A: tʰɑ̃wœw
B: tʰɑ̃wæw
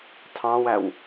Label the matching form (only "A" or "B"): B